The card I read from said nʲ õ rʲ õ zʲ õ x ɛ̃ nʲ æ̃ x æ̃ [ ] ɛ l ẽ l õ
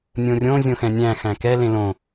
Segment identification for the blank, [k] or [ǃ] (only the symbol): k